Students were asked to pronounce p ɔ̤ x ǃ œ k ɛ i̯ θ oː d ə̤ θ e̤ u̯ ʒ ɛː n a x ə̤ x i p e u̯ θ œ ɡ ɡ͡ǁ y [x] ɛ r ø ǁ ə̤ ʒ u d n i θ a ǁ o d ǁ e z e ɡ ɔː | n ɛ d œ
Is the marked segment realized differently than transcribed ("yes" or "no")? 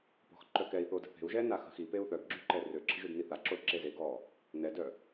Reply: yes